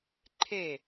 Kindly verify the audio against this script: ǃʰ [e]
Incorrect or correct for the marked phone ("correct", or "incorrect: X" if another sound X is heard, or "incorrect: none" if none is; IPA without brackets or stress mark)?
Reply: correct